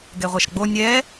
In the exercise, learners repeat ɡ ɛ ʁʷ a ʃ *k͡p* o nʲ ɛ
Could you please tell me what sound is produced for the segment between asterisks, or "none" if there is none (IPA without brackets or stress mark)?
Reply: ɡ͡b